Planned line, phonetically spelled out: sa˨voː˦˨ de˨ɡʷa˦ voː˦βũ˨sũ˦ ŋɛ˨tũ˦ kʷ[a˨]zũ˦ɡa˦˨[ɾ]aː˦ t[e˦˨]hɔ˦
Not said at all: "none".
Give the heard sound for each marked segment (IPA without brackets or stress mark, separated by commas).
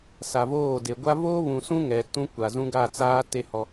a˨, t͡s, e˦